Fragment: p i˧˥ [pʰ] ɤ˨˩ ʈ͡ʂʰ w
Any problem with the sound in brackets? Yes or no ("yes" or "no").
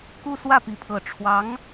no